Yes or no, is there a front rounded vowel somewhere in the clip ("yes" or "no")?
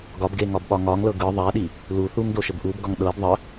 no